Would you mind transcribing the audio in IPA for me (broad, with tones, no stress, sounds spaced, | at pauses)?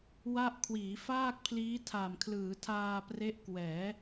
w a˥˩ ʔ kʰ w iː˩˦ f aː˥˩ k̚ pʰ l iː˦˥ tʰ a˨˩ m kʰ l ɯː˩˦ tʰ aː˧ p r e˦˥ ʔ k w ɛː˩˦